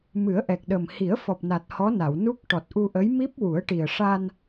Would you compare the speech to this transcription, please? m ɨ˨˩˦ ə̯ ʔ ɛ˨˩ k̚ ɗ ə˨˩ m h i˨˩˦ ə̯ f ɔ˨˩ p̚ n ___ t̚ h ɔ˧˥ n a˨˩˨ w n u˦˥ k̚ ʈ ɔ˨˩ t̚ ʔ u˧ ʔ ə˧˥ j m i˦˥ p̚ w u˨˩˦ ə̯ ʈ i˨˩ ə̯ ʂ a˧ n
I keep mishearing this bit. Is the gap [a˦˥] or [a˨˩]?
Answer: a˨˩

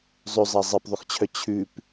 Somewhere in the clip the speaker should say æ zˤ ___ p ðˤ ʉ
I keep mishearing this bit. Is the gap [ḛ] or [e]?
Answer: e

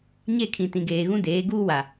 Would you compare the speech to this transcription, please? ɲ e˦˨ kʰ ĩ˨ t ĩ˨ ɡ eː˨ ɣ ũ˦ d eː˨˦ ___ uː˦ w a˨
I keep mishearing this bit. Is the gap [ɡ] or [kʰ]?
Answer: ɡ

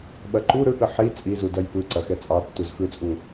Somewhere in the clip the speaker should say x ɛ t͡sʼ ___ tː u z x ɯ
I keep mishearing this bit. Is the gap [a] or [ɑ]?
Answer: ɑ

